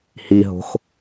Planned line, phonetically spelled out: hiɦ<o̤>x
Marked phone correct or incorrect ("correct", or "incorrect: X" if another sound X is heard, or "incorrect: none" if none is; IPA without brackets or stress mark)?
correct